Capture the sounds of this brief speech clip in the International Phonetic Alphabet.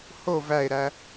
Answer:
ho væe̯ɾæ

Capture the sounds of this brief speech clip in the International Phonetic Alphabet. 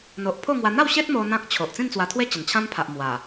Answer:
n̪o˨ʔpʰo˥˧ŋwa˧ n̪a˥˧wɕe˦t̚ mo˧ n̪ã˦k̚t͡ɕʰo˨ʔ t͡sĩ˥˧nt͡swa˧t̪ʰwe˦ t͡ɕə˨˩nt͡ɕʰã˦m pʰa˨ʔ mwa˨˩

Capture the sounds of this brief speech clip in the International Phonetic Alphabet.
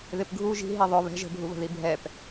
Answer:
ðɪpɡʱu ʒi̤ ɦiðˤʊ βɛ̤ʒ ə̤bʱuβə̤ði bʱɛp

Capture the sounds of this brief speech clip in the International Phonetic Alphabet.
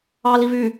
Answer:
ɑli vy

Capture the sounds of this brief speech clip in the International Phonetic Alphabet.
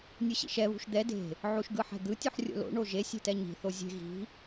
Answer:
nʲuɕḭʃɛ βṳʃd̪ɛ de̤ | ʕuʃɡɯħɛ̤d̪ɯ tʲuħrʲo̰lo̰ ɳoʒe sʲe̤tɛɲi̤ θozʲe̤ ɣi̤

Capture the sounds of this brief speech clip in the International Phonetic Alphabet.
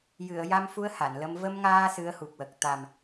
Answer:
jɨ˨˩˨ə̯ ja˧mfu˧˥ə̯ ha˨˩˨nlə˧m və˧mŋaː˧ sɨ˧˥ə̯hu˨˩k̚wə˨˩k̚ t̪a˨˩m

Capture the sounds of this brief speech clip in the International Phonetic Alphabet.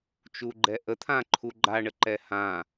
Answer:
t͡ʃuɡ͡ǃɛʔət̪ʰã ǃʰuɡ͡ǃa ɳəǃɛhã

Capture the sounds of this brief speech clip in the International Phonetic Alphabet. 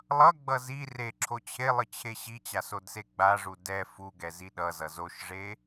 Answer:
lˠʌɡ͡bʌ zi re ǁʰot͡ɕʰelˠɯ t͡ɕʰeɕit͡ɕa sodseɡ͡baʐu dɛ fuɡɛ ziɗʌzʌ zoʃʐe

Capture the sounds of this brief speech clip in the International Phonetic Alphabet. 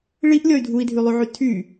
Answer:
ɭiʔlʲɔy̯ dʱui̯dʱylˠyʕy tʰy

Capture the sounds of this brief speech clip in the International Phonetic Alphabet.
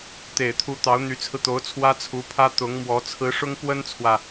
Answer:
t̪e˨˩ɪ̯t̪ʰu˧˥ t̪ɑ˧˥ʊ̯n̪y˧˥t͡sʰɹ̩˧t̪o˧˥ʊ̯ t͡sʰwä˥t͡sʰu˧˥pʰä˥ t̪ʊ˧˥ŋmwɔ˧˥ t͡sʰɹ̩˧˥ʂʊ˥ŋ pwə˥nt͡sʰwä˨

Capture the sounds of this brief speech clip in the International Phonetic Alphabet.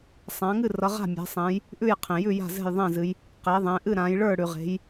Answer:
sˤã˩˧ŋɨ˥˨rʌ˩˧ ʁa̤˥˨mʲɛ̤˩˧sˤɛ̃˩˧j | ʔʉ˥˨jqʰẽ˩jʉ˥˨ ja̤˥˨zɛ̤˥˨jðˤɛ̃˥˨zɨ˩˧j | qe˩˧ðˤɛ̃˩˧ ʔɨ˥˨ɾã˩˧j ɭə˞˥˨ ɽʉ˩ʁe̤˩˧j

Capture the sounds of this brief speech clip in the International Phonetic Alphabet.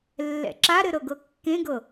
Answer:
lːɛ̰ǁaɾɘ ɾɤɡɤkːẽɡɤ

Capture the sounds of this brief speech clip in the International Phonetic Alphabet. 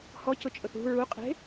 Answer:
hɔcʊt͡ʃʼʊθ ṳ ɹuqʼe̤

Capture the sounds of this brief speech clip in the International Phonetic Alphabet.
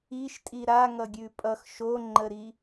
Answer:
iʃtʼi ɾaŋʌ ɡʲʉpʼʌx ʃoŋ͡ǃəɾi

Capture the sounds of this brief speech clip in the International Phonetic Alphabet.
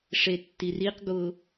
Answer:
ʂetːiriqɡʊ

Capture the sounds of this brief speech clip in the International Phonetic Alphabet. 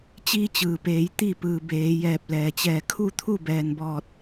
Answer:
t͡ɕiː˧t͡ɕɯː˩peː˩˧j t̪i˧˩ pɯː˩ beː˩˧ jɛː˧˩p̚lɛː˩t͡ɕɛː˧˩ kʰu˥˨t̪ʰu˥˨bɛː˩nbɔː˧˩t̚

